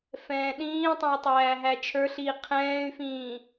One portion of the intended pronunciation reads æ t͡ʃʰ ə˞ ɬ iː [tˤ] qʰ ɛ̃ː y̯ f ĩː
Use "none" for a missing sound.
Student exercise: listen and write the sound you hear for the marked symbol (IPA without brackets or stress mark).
none